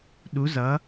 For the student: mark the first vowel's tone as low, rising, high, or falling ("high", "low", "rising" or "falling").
rising